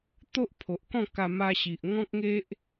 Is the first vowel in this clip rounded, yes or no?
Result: yes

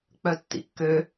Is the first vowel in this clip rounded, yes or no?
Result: yes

